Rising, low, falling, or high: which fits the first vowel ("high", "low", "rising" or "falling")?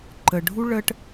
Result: low